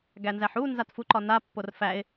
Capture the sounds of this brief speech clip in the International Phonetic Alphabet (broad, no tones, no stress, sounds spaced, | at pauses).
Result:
ɡ æ n z æ ħ u n z a t f u ǃ ɒ n a pː o r f æ ɪ̯